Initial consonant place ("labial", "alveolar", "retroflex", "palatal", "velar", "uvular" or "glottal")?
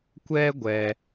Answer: velar